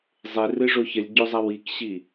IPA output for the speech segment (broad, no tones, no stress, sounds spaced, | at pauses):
zˤ e r ɨ ʐ o ç ə lʲ ɟ o zˤ a w i k ɕ i